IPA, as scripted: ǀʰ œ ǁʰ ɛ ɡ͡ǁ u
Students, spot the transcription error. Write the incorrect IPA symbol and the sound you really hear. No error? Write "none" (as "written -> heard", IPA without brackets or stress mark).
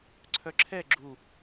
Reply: none